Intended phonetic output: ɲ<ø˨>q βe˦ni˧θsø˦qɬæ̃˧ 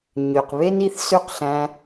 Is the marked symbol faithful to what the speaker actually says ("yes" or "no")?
yes